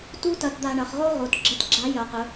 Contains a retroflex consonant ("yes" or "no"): yes